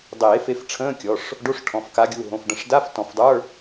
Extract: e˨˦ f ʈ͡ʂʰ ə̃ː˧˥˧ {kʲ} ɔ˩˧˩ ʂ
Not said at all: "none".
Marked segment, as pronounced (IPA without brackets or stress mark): kʲ